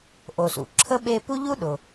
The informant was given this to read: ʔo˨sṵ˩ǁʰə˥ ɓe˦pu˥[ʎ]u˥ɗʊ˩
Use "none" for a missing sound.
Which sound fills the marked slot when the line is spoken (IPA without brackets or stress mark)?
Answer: ʎ